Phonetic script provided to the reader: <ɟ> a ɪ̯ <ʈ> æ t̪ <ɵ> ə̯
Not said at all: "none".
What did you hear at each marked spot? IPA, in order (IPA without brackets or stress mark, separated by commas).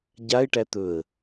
ɟ, ʈ, ɵ